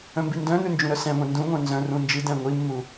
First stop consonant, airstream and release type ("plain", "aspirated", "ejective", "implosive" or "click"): plain